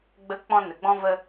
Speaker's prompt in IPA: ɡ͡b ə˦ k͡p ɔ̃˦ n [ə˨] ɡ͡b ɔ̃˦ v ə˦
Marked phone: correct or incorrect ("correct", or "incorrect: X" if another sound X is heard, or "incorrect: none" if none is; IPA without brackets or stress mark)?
correct